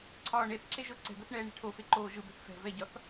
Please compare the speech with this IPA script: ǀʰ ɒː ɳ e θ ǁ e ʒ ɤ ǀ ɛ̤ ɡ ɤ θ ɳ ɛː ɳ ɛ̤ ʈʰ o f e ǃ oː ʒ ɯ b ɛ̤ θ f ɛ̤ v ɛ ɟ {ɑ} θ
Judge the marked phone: incorrect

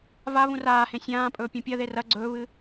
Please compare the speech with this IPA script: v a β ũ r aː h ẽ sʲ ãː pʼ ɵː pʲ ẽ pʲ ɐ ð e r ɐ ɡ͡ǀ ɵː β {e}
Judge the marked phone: incorrect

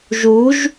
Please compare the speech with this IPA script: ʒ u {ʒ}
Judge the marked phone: correct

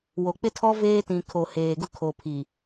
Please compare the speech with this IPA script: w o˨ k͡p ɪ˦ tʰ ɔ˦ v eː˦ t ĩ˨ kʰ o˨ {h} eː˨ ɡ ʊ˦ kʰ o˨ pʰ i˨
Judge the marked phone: correct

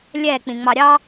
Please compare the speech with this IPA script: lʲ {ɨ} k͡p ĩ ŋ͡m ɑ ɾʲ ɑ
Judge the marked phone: incorrect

